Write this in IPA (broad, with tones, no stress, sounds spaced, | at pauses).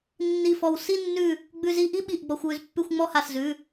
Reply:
nː i˧˩ f ɔ˧˩ w s i˥˧ nː ʉ˧˩ | ɡ͡b ʉ˧ z i˧ ʔ i˥˧ ɓ i˧˩ ʔ ɡ͡b ɔ˧ xʷ w ʉ˧ z pː ʉ˥˧ xʷ ŋ͡m ɔ˥˧ h a˧˩ s z ʉ˩˧˩